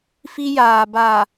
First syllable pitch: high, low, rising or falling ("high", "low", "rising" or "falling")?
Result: high